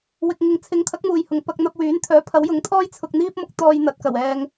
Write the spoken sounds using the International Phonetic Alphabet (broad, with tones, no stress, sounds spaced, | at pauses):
w ɪ˨ k̚ ŋ ɪ˨ ŋ t͡sʰ ɪ˨˥ ŋ t̪ʰ ɐ˨˥ k̚ m uː˨ j h ʊ˨ ŋ p ɐ˧ k̚ n̪ ɐ˧ p̚ w yː˨˥ n t̪ʰ œː˨˥ pʰ ɐ˨˥ w j ʊ˨˥ ŋ t̪ʰ ɔː˥ j t͡sʰ ʊ˧ k̚ n̪ iː˥ p̚ m ʊ˥ k̚ t̪ ɔː˧ j n̪ ɐ˨˥ t̚ k ɐ˨˩ w ɛː˧ ŋ